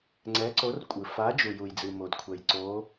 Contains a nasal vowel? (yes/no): no